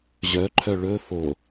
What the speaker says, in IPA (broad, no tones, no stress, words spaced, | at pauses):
ʑœǃʰœ ɭɵ fo